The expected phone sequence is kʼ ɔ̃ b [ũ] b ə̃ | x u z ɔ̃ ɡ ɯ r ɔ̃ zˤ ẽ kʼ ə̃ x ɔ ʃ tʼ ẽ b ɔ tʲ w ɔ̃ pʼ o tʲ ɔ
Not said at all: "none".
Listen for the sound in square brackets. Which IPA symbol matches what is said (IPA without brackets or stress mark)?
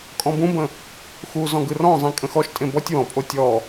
ũ